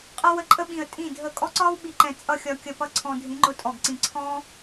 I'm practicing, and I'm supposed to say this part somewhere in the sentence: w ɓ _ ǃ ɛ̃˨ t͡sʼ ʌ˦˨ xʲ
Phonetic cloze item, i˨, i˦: i˨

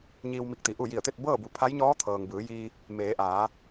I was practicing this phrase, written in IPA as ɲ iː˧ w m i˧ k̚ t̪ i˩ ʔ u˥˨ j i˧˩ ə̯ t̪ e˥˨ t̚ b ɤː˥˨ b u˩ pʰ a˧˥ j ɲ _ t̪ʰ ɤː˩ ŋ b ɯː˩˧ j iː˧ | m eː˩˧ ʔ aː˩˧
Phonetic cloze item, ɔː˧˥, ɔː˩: ɔː˧˥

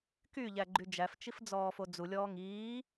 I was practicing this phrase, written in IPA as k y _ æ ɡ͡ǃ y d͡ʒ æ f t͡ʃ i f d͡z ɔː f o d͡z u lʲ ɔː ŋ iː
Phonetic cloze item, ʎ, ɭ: ʎ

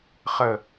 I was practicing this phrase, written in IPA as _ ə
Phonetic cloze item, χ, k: χ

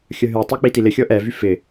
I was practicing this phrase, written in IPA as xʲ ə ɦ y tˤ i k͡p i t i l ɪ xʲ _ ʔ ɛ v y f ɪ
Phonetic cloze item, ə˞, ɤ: ɤ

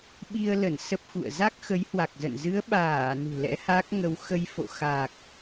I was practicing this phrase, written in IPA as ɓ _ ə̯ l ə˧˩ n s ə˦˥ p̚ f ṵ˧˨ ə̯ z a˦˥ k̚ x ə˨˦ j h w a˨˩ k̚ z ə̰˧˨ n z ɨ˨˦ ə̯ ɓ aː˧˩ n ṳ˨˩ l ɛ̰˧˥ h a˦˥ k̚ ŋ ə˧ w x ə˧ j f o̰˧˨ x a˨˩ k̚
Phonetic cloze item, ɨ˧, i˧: i˧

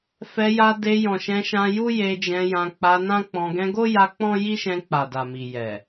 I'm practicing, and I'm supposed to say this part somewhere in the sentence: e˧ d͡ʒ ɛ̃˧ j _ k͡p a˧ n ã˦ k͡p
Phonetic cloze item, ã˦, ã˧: ã˧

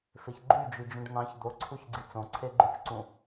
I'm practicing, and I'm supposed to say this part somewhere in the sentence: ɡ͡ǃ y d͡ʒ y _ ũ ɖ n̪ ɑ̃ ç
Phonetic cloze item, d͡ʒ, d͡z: d͡ʒ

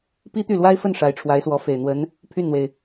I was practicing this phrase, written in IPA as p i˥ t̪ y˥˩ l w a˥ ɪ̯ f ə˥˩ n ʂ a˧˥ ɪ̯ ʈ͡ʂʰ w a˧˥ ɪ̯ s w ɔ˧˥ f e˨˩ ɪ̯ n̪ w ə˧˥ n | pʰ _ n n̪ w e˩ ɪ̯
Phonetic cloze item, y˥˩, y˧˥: y˥˩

